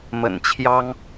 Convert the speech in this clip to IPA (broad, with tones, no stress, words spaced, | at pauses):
mə̰˨˩nt͡ɕʰjɑ˥ŋ